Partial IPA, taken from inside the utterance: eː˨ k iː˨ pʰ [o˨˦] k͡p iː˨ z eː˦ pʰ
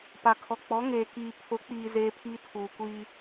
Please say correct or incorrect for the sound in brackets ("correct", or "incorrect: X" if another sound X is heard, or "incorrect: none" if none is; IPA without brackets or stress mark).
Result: correct